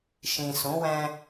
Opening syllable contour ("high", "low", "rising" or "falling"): low